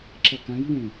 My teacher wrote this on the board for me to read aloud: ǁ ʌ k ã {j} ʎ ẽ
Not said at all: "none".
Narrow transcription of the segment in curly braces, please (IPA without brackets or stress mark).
j